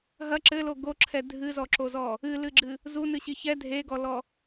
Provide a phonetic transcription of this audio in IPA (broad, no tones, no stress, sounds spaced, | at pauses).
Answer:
ɦ ɐ ǁ ɘ l o ɡ o ǁʰ ɛ dʱ ɨ z ɔ ǁ o z ɔ | ɨ l ɨ ɡ͡ǁ ɨ | z u n ɨ ɕ i ç ɛ dʱ e ɡ ɔ l ɔ